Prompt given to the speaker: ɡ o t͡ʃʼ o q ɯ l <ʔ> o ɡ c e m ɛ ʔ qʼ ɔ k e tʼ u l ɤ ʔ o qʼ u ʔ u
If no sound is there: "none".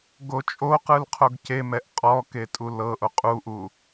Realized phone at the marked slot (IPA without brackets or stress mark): qʰ